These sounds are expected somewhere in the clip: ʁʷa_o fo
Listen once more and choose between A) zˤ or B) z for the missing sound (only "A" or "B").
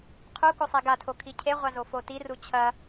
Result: B